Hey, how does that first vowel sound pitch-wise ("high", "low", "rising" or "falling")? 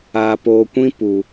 low